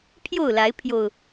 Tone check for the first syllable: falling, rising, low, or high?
falling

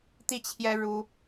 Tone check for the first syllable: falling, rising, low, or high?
falling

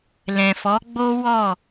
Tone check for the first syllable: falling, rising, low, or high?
low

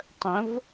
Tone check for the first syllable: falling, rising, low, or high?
rising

